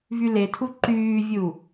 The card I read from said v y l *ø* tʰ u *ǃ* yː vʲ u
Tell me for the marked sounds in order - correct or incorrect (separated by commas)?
incorrect, correct